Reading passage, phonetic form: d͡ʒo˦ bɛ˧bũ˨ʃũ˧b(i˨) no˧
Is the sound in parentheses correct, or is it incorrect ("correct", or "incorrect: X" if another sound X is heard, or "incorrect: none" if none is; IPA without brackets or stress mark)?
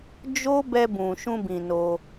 incorrect: ĩ˨